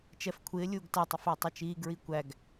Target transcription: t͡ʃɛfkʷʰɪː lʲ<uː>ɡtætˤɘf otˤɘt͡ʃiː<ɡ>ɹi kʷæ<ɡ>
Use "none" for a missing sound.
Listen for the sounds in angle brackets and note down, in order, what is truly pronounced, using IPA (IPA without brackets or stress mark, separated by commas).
uː, ɡ, ɡ